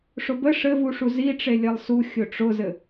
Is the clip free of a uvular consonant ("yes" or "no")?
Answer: yes